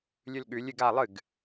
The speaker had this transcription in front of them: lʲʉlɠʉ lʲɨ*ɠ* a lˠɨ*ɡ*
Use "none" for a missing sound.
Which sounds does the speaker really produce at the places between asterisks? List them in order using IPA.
ɡ, ɡ

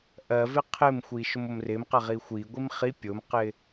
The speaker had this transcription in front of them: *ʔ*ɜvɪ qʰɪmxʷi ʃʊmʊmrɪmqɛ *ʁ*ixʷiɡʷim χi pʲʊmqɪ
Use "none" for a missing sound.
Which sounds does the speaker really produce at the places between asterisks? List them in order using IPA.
ʔ, ʁ

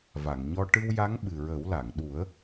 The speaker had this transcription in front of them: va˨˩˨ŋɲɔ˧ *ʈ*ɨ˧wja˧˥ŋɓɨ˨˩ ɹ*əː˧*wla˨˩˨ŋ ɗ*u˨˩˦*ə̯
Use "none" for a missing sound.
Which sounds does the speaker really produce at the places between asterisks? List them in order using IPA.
ʈ, əː˨˩˦, u˨˩˦

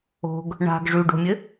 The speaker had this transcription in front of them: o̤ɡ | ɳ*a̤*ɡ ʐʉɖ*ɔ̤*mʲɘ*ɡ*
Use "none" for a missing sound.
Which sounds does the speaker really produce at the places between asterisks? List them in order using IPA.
a̤, o̤, none

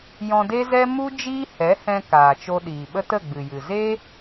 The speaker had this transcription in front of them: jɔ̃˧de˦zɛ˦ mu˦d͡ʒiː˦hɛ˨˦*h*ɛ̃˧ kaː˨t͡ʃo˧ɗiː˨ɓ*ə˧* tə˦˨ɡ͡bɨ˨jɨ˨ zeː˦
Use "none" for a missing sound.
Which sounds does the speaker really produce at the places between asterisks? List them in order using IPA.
h, ə˦

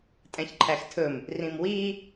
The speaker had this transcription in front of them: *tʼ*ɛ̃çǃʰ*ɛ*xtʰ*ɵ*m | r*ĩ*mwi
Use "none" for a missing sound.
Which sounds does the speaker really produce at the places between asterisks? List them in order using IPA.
tʼ, æ, ɵ, ĩ

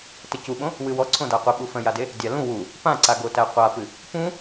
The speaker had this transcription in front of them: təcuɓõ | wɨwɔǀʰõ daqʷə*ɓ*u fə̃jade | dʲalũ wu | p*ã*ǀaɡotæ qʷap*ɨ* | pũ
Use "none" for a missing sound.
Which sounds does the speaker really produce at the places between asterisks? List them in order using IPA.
ɓ, ã, ɨ

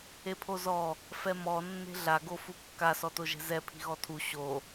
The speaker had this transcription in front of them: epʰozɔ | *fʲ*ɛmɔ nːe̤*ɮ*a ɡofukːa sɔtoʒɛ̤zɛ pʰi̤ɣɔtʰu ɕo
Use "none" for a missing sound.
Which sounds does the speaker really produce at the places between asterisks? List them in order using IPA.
f, ɮ

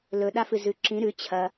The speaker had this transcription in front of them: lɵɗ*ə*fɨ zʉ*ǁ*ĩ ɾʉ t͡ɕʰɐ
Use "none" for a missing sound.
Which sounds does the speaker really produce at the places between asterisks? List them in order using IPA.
a, ǁ

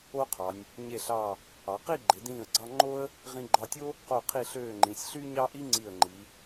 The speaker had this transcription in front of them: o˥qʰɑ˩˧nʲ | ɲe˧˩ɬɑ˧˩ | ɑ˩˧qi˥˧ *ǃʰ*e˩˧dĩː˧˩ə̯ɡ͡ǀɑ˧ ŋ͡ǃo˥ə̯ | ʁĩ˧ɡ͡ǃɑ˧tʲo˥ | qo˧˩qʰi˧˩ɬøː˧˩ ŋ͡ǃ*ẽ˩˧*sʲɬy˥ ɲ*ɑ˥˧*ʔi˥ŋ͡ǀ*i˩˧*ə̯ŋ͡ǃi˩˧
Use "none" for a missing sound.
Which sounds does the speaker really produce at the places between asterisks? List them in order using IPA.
ɡ͡ǃ, ĩ˩˧, ɑ˥, i˧˩

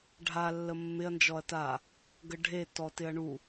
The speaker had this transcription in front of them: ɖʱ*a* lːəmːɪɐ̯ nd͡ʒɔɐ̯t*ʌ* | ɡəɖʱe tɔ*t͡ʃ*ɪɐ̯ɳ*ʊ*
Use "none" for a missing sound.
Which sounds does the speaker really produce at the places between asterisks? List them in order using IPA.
a, a, t, u

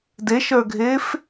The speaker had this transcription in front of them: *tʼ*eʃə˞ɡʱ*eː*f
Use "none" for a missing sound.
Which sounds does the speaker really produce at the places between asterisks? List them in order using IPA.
d, eː

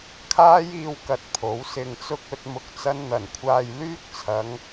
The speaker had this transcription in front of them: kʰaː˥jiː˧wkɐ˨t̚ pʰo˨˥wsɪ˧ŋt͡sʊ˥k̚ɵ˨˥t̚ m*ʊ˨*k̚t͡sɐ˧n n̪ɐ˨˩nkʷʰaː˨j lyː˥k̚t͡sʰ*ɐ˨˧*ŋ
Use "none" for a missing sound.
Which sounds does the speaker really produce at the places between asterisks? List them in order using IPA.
ʊ˨, ɐ˨˧

